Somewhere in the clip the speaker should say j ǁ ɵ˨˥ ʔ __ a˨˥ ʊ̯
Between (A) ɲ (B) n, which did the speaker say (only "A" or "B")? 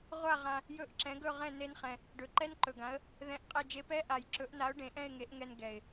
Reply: B